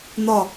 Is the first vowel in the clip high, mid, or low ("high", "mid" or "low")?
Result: low